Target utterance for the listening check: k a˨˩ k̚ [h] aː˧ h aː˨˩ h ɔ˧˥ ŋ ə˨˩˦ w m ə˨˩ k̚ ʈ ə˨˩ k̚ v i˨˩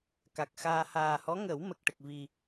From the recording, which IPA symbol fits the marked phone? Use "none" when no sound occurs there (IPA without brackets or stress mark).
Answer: x